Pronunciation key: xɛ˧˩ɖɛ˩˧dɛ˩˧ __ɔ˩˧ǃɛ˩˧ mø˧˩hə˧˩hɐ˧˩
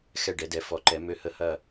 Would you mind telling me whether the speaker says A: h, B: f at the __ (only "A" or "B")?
B